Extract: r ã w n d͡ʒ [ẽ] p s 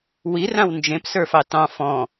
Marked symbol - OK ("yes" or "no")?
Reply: yes